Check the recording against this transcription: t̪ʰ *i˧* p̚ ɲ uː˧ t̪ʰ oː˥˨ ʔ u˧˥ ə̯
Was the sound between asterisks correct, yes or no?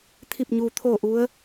no